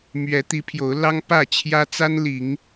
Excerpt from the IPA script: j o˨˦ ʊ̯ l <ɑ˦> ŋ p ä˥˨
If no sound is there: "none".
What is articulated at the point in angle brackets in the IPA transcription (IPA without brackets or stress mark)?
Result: ɑ˦